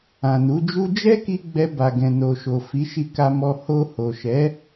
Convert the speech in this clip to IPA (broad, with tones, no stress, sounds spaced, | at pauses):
ã˨ n u˨˦ d͡ʒ u˦ d͡ʒ ɛ˦ k i˧ ɡ͡b ɛ˧ b a˨ ɡ ɛ̃˨ n o˨ ʃ o˨ f i˨˦ ʃ i˧ k a˧ m ɔ˧ h o˧ h o˨ ʃ ɛ˨˦